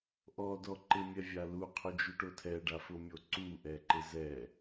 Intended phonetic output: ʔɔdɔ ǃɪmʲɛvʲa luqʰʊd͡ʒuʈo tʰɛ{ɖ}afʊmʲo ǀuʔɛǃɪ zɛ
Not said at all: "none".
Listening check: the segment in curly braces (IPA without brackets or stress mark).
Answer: ɖ